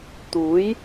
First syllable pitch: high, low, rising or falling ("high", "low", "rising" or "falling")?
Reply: rising